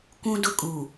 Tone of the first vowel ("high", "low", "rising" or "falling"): high